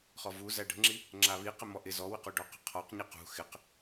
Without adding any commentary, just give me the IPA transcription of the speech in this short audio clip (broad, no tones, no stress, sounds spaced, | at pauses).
χ ɔ v u z æ ɖ ə̤ ŋ͡ǁ i | ŋ͡ǁ a β i q ɪ m ɔ ʔ ɪ z ɔ w ɪ q u ɖ ɔ q ə̤ qʰ ɔ q ɲ i q ṳ x ɪ q